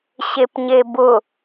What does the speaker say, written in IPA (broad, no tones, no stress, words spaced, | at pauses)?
ɕepɲebʊ